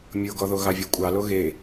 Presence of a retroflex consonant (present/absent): absent